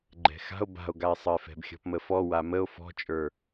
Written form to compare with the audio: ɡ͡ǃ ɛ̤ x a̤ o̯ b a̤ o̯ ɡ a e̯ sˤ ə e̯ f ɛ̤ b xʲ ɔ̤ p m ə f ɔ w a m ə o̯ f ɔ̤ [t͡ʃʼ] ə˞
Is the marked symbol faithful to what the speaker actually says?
yes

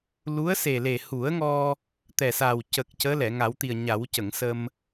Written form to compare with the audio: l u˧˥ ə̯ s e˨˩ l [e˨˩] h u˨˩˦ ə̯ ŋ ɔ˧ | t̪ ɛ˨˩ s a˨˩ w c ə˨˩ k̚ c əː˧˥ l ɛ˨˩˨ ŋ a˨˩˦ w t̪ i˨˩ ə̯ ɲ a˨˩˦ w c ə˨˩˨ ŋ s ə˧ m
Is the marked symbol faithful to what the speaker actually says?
yes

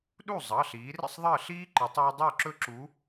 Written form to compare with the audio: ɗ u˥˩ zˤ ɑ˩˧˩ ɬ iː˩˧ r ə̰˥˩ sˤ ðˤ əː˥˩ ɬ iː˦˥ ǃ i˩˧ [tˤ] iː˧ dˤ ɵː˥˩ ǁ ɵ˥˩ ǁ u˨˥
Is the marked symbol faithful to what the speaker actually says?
yes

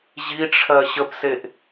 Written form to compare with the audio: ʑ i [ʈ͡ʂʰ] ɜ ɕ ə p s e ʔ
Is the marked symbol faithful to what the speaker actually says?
yes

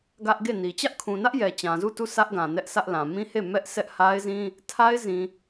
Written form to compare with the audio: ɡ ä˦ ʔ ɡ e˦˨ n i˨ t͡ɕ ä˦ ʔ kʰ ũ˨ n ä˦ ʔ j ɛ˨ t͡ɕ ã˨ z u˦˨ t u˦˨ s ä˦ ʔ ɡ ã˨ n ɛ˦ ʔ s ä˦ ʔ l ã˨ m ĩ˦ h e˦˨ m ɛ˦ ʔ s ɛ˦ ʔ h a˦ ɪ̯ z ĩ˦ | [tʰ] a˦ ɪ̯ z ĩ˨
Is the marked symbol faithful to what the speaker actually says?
yes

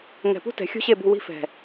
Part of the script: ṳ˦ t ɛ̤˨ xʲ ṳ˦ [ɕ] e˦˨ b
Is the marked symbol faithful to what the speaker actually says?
yes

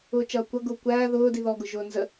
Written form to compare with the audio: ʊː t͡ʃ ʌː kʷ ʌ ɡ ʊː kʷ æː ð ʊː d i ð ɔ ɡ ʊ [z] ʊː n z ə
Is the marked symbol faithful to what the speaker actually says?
no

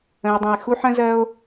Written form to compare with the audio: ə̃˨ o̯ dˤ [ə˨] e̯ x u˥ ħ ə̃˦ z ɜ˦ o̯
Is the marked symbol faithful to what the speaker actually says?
no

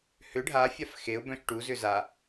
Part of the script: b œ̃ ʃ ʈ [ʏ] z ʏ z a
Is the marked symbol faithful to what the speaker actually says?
no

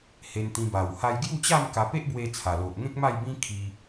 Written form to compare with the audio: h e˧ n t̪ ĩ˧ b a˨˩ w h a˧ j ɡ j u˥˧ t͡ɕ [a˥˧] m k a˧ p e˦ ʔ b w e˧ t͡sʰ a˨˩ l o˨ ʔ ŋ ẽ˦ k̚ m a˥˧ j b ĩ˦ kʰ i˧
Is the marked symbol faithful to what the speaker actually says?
yes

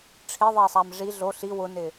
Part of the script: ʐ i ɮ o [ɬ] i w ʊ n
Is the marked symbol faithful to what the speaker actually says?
yes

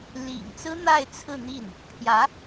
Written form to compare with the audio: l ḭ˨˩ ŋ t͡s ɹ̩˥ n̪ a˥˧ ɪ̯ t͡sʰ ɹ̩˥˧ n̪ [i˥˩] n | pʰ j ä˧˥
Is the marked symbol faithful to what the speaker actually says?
yes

